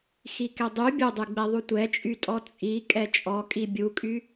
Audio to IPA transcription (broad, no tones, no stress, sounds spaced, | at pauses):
x i k ɛ dˤ y bʲ u dˤ y ɡ͡b ɛ ðˤ u tʷ ɛ t͡ʃʼ y tʼ ɔ t͡sʼ i kʼ ɛ t͡ʃʼ ɔ kʼ i bʲ u kʼ y